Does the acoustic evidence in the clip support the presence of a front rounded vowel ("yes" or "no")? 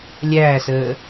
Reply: no